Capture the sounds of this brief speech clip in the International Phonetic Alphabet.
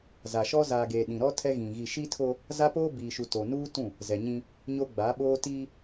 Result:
z a˨ ʃ ɔ˦ z aː˨ ɡ eː˨ ɗ ĩ˨ ɾ ɔ˦ tʰ ɛ˦ ɣ ĩ˨ ɣ i˨ ʃ i˦ tʰ o˦ | z a˦ p oː˦ b iː˨ ʃ u˨ t o˨ n uː˦ t ũ˦˨ | z ɛ˨ ɲ ĩ˦ | ɲ o˦ ɡ͡b a˨˦ ɓ oː˦ t iː˦

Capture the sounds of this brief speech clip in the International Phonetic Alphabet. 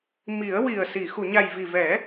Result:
m i˨˩˦ ə̯ w i˨˩ ə̯ s i˨˩˨ x u˨˩˨ ɲ a˨˩ j v i˨˩ v ɛ˨˩˦

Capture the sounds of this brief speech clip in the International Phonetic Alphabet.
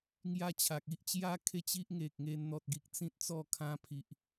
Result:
ŋ j a˦ t͡ɕʰ a˨ k̚ i˦ ʔ t͡ɕ j a˦ kʰ e˥˧ t͡ɕ i˦ ʔ ŋ e˨ k̚ ŋ e˧ n n̪ ɔ˨ t̚ ɡ i˨ k̚ t͡s ĩ˦ t̚ t͡s ɔ˥˧ kʰ ã˧ pʰ i˨ ʔ

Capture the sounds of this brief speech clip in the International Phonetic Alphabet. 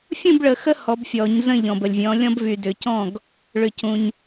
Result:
fʲ ũ˥˨ b ɭ ə˨ x ə˦ h ɔ˨˦ b fʲ ɔ˨˩˦ ɲ z ə̃˥˨ ʎ ɔ̃˨ b ə˨ lʲ vʲ ɔ̃˨˦ lʲ ɔ̃˦ b v y˨ d ʏ˨˩˦ c ɔ̃˥˨ ɡ | ɭ ʏ˨ c ũ˨ ɲ

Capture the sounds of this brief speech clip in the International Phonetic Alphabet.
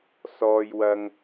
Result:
s ɔː˧ j w ɐ˧ ŋ

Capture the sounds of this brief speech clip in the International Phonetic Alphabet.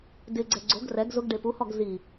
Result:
d ɪ ɡ͡ǀ ɛ ɡ͡ǀ o ɡ r ɛ ɡ z ʊ ɡ ɖ e p u h ɔ ɡ z i

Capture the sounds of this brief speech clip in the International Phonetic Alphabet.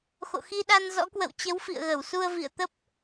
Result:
x o̰˧˨ x i˧ ɗ a˧ n z ɔ̰˧˥ k w ə̰˧˨ w t͡ɕ ə˨˦ w f ḭ˧˨ ə̯ ɣ ə˧˩ w s u˧ ə̯ v ḭ˧˨ ə̯ t̪ ə˦˥ p̚

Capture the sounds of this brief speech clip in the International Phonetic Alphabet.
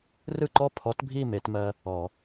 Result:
r ɯ˥˨ ǃ ɔ˥˨ pʰ ɔ˨˥ t bʱ i˥˨ m e˨˩˦ t m ɜ˧ | ɔ˨˩˦

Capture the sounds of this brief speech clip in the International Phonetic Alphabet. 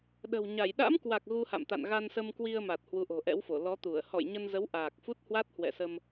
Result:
ɗ ə̤˨˩ w ɲ a˧˩ j ɗ a̰˧˥ m k w a˨˩ k̚ ɣ u˧ h a̰˧˨ m t̪ a̰˧˨ n ɣ a˧ n s ə˧ m k w i˧ ə̯ m a˨˩ t̚ h w u˨˦ ʔ o̤˨˩ ʔ ɛ̰˧˥ w f o˧˩ l ɔ˨˦ t̪ u˧˩ ə̯ h ɔ̰˧˨ j ɲ ə˧ n z ə˨˦ w ʔ aː˨˩ k̚ f u˦˥ t̚ h w a˦˥ t̚ h w ɛ̰˧˨ s ə˧ m

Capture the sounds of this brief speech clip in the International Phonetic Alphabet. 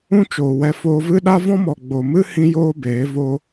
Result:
ũ˦ t͡ʃ oː˨ w ɛ˧ f oː˧ v ɨ˦ ɗ a˦ v ɔ̃˦ m ɔ˨ ɡ͡b o˨ m ɨ˦ h ĩ˦ j oː˦ b eː˨˦ v o˧

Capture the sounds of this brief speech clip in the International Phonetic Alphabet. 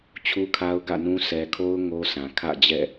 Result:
t͡ɕʰ u˦ kʰ a˦ ʊ̯ ɡ ä̰˦˨ n ũ˦ s ɛ˨ kʰ o˦ ʊ̯ ŋ o˦ s ã˨ kʰ ä̰˦˨ d͡ʑ ɛ̰˦˨

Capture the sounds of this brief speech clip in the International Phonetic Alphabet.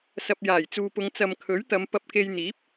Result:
s ɐ˨ p̚ j aː˨˩ j t͡s uː˨ p ʊ˨˧ ŋ t͡s ɐ˨ m kʰ ɵ˨˥ ɥ t̪ ɐ˨˧ m p ɐ˧ p̚ k e˧ j n̪ iː˨˥ p̚

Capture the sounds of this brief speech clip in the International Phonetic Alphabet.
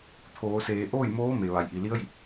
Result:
t̪ʰ oː˩˧ s eː˩˧ ʔ oː˥˨ j m oː˧˥ m e˩ ʋ a˩ j ʔ i˩ l i˧˥ ə̯ j i˧˩ p̚

